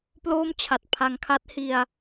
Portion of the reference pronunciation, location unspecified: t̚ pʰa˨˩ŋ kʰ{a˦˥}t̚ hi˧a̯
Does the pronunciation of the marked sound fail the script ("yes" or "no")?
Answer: no